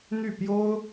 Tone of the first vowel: falling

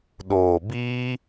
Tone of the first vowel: low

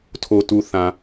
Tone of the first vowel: low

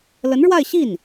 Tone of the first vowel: rising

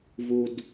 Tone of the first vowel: low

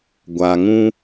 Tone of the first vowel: low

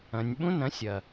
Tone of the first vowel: low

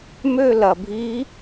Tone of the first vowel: falling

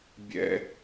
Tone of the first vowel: high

